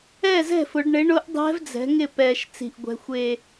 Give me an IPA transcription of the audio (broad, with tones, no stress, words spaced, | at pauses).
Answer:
ɛ˥˩zɛ̤˥˩fʊ˩˧ɖɳɪ˩˥ ɳʊ˧˥ʔ dˤɛ̤˧˥v d͡zɛ̤˩˥ŋɪ˥˩ pɛ˨˩ʃ t͡si̤˨˩ʔɡʷɛ̤˩˧ xʷe˨˩